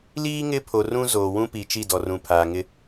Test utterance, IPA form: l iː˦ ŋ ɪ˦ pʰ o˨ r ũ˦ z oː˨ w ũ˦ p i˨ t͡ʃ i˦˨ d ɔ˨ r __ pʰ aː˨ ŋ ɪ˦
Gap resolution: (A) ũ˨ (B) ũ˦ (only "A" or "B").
A